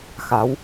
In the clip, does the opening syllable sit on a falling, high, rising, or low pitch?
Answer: rising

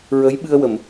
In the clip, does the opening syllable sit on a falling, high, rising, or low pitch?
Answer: rising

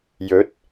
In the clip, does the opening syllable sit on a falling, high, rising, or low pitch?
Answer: rising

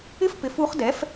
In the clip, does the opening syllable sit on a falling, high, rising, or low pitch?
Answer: high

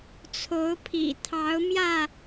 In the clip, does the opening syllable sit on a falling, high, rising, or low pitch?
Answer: rising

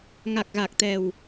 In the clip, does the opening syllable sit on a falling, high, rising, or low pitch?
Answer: low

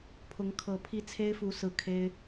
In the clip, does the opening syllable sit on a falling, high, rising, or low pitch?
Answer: rising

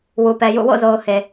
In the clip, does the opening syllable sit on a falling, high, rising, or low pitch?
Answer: low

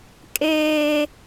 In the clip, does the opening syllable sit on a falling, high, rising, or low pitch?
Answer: high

